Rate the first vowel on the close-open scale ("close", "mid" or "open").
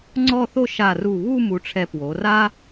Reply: mid